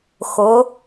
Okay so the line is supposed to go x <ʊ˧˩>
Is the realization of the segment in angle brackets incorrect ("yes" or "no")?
yes